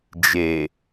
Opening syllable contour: low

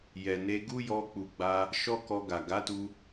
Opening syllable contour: low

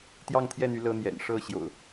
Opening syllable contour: falling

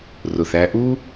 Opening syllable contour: low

